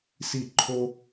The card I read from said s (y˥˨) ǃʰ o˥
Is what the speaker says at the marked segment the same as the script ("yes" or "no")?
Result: no